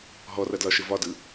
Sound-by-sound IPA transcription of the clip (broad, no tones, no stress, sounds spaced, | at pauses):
ɦ ɔ r ɐ d l ɒ ʃ ɘ v ɒ d ɯ